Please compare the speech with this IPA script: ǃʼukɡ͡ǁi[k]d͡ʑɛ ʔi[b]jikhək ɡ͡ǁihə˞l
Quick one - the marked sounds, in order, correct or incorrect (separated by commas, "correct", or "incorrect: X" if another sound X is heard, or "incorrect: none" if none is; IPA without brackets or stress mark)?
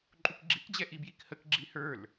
correct, correct